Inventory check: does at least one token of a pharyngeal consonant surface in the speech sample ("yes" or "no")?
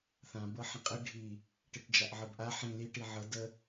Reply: yes